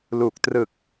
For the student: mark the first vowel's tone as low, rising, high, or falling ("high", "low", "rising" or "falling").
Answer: low